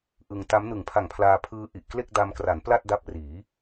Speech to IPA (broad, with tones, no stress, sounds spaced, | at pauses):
ʔ ɯ˧ ŋ t a˦˥ m n ɯ˨˩ ŋ pʰ a˨˩ ŋ pʰ l aː˧ pʰ ɯː˦˥ ʔ i˨˩ ʔ k l e˥˩ k̚ d a˧ m k r a˩˦ n p l a˥˩ t̚ d a˦˥ p̚ r iː˩˦